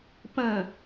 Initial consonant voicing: voiceless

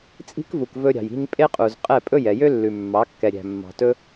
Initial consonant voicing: voiceless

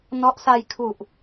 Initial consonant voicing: voiced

